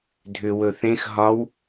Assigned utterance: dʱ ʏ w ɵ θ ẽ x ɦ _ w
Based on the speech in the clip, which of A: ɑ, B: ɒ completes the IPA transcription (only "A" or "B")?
B